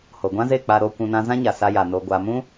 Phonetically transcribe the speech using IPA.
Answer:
h o˨ ɡʷ ã˦ z e˦˨ k͡p a˧ ɾ o˧ kʷ ũ˧ n ã˦ z ã˦ ɲ a˨ s a˧ j a˨ n o˨ ɡʷ a˨ m ũ˦

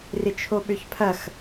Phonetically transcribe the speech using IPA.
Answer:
r ɪ t͡ʃʰ o ɓ ø ç pʰ ɐ x

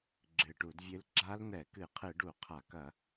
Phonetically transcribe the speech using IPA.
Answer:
ɡ͡ǁ ɨ˨˩ ʈ u˧˩˧ d vʲ ɨ˦˥ l ɡ͡ǁ a˦˥ l n̪ ɛ˧˩˧ k ɨ˧˩˧ qʰ ɨ˧˩˧ ɖ u˧˩˧ qʰ a˧˩˧ k ɐ˧˩˧

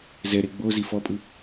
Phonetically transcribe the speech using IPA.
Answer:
z ɛ ɾ e ɡ͡b o z i f ɔ pʼ ɯ

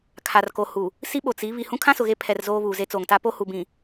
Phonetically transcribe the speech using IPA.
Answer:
kʰ a˨ r k o˨ h u˨ | s i˦ ɓ o˨ t͡s i˨˦ β i˨ h ũ˦ kʰ ã˦ s ʊ˨ ɣ e˦ pʰ ɛ˨ r z oː˦ β uː˨ z e˦ t͡s oː˨ ŋ t a˦ p o˦ h u˨ b ĩ˨

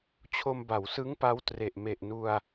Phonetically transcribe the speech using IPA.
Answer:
t͡ɕʰ o˧ m b a˩˦ w s ɯ˦˥ ŋ p a˦˥ w t r e˨˩ ʔ m e˨˩ ʔ n u˧ a̯

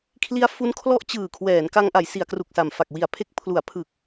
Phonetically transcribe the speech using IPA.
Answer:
kʰ l i˦˥ a̯ f u˦˥ n kʰ l ɔ˦˥ ʔ t͡ɕ ɯː˨˩ kʰ w ɛː˩˦ n k a˧ ŋ ʔ a˩˦ j s i˩˦ a̯ k r u˨˩ k̚ s a˨˩ m f a˨˩ k̚ w i˨˩ a̯ pʰ e˦˥ k̚ pʰ l u˩˦ a̯ pʰ ɯ˨˩ k̚

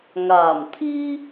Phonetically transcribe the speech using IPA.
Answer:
ŋ aː˨˩ m t̪ʰ iː˥

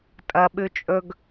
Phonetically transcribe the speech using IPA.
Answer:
tʼ ɐ ɓ ʉ t͡ʃʼ ɵ ɡ

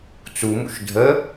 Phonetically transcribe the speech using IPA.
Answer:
t͡s u m ṵ ʃ dʱ ə

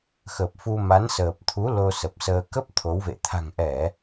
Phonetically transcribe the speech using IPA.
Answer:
x ə˨˩ p̚ f u˧ m a˨˦ n s əː˨˩ p̚ t̪ʰ u˨˦ l o˧ s ə˨˩ p̚ s əː˧ k ə˦˥ p̚ t̪ʰ o˨˦ w v ḛ˧˨ t̪ʰ a̤˨˩ ŋ ʔ ɛ˧˩˨

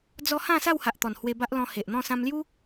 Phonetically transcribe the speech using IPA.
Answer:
d͡z ɔ˦ h ã˥˧ s a˥˧ w h a˨ ʔ t̪ ɔ˨˩ n h w e˧ b a˦ ʔ l ɔ̃˧ h e˨ ʔ n̪ ɔ̃˥˧ s ã˧ m l j u˦

